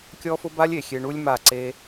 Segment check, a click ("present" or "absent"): present